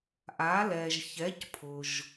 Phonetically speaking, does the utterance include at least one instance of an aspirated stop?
yes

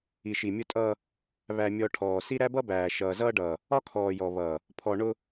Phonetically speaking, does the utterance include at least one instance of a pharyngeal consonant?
no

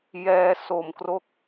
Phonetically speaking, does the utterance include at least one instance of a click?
no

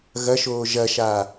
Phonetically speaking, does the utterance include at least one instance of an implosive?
no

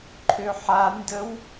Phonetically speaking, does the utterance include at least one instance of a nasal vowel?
no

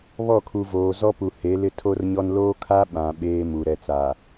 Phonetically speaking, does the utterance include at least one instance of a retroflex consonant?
no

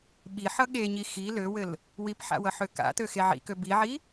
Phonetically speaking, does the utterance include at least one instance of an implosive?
yes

